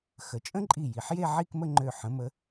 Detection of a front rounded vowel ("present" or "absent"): present